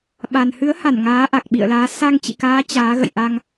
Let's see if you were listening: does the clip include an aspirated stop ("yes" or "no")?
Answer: no